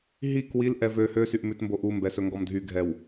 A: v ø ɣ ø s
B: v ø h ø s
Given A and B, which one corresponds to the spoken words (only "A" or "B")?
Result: B